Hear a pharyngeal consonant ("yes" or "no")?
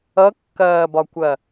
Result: no